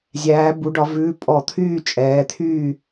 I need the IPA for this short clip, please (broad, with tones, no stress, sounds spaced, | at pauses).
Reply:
zʲ æː˩˧ b u˩˧ ɖ ɒ˩˧ v ʉː˩˧˩ pʼ ɔ˧˩˧ t̪ʰ yː˥˨ t͡ʃʼ ɛː˩˧ t̪ʰ yː˥˨